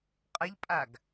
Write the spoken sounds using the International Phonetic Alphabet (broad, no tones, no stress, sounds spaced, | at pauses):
qʼ ɐ ʎ pʼ a ɡ